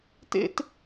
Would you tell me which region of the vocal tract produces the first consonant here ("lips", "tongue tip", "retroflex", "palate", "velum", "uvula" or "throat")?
tongue tip